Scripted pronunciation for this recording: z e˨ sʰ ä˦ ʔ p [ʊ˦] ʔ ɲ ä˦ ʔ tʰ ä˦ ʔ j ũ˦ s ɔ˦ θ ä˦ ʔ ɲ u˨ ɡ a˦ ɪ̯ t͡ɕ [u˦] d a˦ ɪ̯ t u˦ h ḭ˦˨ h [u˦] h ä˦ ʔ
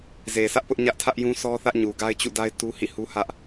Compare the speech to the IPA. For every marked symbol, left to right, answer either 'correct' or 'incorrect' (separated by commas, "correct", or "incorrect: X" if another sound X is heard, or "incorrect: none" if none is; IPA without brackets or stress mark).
correct, incorrect: ṵ˦˨, correct